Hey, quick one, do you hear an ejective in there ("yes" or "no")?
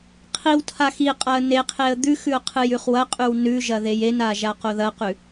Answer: yes